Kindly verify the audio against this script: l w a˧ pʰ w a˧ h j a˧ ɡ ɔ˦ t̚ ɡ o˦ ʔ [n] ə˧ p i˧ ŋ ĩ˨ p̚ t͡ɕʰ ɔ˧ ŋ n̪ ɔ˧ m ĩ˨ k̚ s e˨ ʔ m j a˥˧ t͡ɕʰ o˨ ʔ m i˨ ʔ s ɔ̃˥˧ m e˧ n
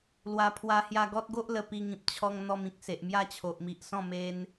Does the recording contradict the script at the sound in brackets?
yes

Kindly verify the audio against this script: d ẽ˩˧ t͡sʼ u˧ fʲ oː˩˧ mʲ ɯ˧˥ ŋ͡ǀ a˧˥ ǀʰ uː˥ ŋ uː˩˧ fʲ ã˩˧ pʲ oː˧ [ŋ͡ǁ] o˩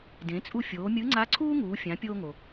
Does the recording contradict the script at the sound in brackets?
yes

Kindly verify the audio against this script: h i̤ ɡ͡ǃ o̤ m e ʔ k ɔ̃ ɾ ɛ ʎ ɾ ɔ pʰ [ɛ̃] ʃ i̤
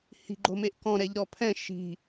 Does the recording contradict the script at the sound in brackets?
no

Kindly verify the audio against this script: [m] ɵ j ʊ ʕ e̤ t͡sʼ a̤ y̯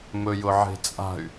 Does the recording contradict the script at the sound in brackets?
no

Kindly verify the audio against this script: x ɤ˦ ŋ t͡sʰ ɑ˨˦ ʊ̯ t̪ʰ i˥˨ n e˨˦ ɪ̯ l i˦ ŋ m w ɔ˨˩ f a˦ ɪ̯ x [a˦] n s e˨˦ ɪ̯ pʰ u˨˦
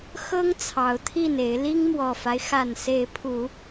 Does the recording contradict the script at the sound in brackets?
yes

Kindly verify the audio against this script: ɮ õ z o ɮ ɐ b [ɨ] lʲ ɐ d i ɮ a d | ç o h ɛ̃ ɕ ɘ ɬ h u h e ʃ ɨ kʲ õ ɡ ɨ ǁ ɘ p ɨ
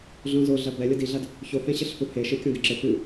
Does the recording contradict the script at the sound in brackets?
yes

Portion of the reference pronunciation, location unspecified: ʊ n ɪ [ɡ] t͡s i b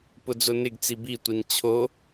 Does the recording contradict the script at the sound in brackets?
no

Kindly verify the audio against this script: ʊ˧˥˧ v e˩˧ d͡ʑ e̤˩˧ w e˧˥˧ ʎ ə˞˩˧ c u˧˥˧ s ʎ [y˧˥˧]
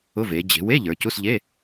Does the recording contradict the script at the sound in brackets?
yes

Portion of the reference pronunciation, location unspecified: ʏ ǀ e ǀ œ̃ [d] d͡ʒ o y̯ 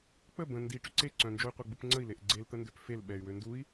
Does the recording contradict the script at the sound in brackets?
yes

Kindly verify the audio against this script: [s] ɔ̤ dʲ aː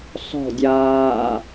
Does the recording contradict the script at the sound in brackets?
no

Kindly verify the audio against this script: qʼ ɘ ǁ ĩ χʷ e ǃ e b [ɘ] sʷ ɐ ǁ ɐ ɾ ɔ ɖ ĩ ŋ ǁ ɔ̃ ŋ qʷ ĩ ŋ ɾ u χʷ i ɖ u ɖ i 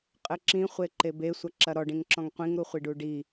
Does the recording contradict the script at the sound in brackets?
yes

